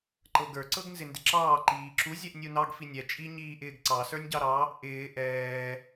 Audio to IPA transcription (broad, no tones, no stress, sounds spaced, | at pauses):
ǃ ɤ ɡ ə˞ ǀ ɤ ɡ n z ɪ n d ɪ ǁ ɑː ǃ iː ǁ u zʲ ɛ ʔ nʲ u n ɑ ɡ f i nʲ ɛ t͡ʃʼ i ɲ iː ʔ ɪː ɡ ǀ ɑ s ə˞ nʲ ɟ ɑ ɾ ɑ | ʔ ɪː ʔ ɛː